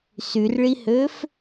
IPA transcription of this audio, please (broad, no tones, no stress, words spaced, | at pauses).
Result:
syrɭihøf